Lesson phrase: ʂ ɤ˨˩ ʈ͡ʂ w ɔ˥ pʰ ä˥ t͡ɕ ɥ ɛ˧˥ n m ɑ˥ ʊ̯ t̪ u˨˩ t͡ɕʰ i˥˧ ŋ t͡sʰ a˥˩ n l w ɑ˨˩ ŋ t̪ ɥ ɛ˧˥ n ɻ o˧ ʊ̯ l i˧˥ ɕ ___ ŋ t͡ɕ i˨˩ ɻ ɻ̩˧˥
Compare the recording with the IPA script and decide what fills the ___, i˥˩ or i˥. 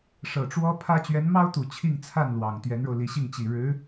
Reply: i˥˩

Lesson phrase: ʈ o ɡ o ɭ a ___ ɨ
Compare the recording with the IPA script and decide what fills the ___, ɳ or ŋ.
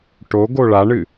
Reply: ɳ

